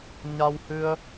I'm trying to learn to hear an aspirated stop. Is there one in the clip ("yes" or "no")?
no